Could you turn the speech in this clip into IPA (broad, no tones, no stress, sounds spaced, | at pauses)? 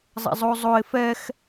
zˤ ɛ̰ zˤ o zˤ o ɪ̯ f ɛ x